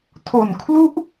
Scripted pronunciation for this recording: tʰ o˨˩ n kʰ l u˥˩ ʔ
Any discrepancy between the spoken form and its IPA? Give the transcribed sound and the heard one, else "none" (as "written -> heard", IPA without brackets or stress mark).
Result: none